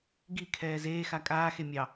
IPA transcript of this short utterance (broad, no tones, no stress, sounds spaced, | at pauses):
ɡ i kʰ ɛː z eː x a kʼ aː x e mʲ ɑ